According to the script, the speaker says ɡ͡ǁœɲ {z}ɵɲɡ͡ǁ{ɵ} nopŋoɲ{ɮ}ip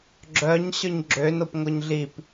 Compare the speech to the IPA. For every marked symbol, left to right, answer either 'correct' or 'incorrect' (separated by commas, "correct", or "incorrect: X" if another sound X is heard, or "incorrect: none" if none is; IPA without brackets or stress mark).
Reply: incorrect: ɕ, incorrect: ø, correct